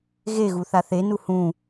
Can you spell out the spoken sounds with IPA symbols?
ɣeɣu θaθenu hũ

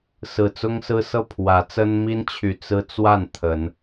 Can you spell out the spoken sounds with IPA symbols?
sɹ̩˨˩t͡sʊ˦ŋsɹ̩˦sɤ˥˨ pʰwä˨˦t͡sə˦n mi˦nt͡ɕʰy˨˩ t͡sɹ̩˦t͡swa˥˨n t̪ʰə˨˦n

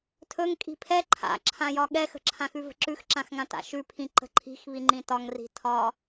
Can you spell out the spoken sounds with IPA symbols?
tʰɵŋ kʼi̤pʰɛ ǃʰa̰ǁʰãjɒ ɠɛxə̤ǁʰãxʉ və̤ǁʉxǁãxŋã ta̰ʃʉpʰĩ ǃə̤ǃʰi̤xβiŋ͡ǃĩ tɒŋri̤ tʰɒ

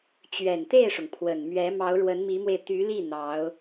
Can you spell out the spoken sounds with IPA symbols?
t͡ɕɥɛ˨˩nt̪e˥˩ɪ̯ʂʊ˩ŋ pʰwə˨˩nmɥɛ˧˥ mɑ˧˥ʊ̯ɻwə˧˥nmi˧˥mwe˧ɪ̯ t̪y˧˥li˥˩ n̪ɑ˧˥ʊ̯

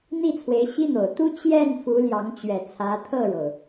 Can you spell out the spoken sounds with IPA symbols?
n̪i˥˩t͡sʰwe˧˥ɪ̯ɕi˥n̪o˨˩ʊ̯ t̪u˥ t͡ɕjɛ˥˩n fu˧˥ljɑ˧˥ŋ t͡ɕɥɛ˨˩t͡sʰä˧˥ t̪ʰɤ˥˩ɻo˩ʊ̯

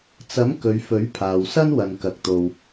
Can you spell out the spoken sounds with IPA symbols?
t͡sɐ˨˥m kɵ˨˧ɥfɵ˨˥ɥpʰaː˨w sɐ˥nwɐ˨n kɐ˨k̚t̪o˨w

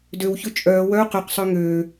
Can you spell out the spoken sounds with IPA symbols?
døwçø t͡ʃʼœː wœu̯ qyqsˤø ŋøː

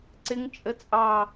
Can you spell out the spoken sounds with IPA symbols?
ǀɪŋ t͡ʃʼət͡sʼɑ

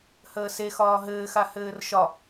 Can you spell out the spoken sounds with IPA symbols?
həːsexɒː ɦɘːxa hɘːrʃɒ

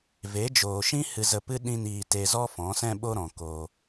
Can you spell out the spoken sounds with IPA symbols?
ve˨˦d͡ʒoː˨ʃĩ˦ hɨ˧zə˧pɨ˦ ɗĩ˦niː˧ te˧zɔ˦ fɔ̃˨˦sɛ̃˦ɓo˦ɾɔ̃˨ ko˧

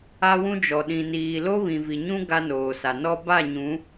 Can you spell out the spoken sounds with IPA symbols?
a˦wũ˦d͡ʒɔ˨ ɗĩ˨niː˨lo˦ βĩ˨vi˨ɲũ˦ ɡa˦noː˨sa˨ nɔ˦ ba˦˨ɲũ˨˦

